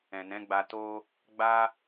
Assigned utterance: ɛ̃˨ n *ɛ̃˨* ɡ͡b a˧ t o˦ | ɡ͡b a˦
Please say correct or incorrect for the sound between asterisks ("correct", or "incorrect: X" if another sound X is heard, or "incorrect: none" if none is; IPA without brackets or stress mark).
incorrect: ɛ̃˨˦